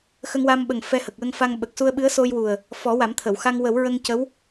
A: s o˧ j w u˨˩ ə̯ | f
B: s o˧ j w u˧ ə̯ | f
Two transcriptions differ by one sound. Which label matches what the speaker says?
A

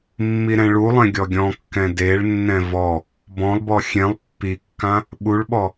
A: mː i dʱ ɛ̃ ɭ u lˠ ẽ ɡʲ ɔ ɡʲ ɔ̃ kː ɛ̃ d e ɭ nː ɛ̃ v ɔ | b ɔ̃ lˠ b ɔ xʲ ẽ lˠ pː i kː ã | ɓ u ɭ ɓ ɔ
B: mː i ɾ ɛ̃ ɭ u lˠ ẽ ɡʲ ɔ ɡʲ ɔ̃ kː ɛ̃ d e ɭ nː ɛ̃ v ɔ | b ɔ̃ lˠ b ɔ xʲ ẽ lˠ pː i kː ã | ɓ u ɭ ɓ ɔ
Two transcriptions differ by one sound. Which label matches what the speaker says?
B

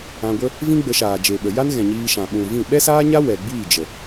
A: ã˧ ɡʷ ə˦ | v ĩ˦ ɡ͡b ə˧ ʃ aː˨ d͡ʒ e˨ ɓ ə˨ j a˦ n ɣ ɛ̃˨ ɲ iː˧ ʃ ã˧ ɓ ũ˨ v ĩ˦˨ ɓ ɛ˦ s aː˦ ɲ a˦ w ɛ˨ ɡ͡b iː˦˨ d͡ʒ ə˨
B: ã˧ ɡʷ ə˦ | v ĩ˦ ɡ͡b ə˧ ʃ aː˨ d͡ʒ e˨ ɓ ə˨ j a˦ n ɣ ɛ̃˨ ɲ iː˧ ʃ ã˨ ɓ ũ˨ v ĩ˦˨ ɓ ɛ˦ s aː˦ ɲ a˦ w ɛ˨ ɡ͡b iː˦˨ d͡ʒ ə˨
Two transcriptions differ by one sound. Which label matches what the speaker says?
B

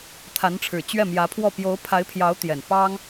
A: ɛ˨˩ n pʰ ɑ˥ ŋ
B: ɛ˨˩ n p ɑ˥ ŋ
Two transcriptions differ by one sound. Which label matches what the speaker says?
B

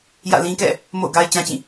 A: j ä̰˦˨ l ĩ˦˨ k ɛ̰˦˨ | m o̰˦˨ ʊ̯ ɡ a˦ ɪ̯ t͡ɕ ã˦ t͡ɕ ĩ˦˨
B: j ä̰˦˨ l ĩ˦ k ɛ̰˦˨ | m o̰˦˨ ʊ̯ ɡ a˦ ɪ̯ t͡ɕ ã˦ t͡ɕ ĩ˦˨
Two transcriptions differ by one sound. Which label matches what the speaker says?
B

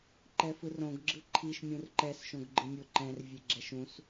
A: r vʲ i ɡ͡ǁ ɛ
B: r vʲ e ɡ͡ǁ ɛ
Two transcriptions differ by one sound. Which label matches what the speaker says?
B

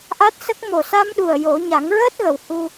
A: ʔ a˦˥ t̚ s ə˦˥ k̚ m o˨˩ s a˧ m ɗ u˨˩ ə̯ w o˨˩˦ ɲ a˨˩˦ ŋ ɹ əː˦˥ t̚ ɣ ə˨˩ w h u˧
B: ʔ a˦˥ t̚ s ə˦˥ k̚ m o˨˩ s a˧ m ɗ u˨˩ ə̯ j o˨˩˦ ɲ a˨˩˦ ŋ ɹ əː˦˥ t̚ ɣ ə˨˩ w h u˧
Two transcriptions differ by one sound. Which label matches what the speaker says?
B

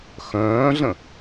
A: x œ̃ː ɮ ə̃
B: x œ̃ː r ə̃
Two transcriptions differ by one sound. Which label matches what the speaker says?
A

